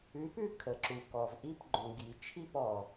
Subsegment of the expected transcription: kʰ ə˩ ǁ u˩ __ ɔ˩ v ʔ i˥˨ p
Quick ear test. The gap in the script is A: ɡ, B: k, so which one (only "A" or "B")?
B